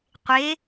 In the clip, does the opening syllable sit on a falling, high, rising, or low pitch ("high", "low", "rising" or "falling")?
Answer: rising